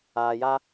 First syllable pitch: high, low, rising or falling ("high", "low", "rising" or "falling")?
low